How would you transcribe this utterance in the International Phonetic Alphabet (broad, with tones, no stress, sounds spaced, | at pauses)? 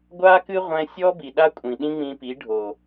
ɡʷ a˦ k ɨ˦ ʁʷ ɛ̃˧ sʲ ɔ˦ b i˨ ɗ a˦ kʷʼ ĩ˨ ɗ ĩ˦ ŋ͡m ĩ˧ p i˨˦ ɖʱ o˨